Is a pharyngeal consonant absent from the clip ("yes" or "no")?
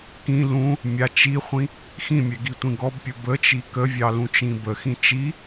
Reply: yes